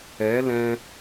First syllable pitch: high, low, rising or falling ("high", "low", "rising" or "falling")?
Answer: rising